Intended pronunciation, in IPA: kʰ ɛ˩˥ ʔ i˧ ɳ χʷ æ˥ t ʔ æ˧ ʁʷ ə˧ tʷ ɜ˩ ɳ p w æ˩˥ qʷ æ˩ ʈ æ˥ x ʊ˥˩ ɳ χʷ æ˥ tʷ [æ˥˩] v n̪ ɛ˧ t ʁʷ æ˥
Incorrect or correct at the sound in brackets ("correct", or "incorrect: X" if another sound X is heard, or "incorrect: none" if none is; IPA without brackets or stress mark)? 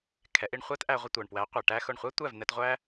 correct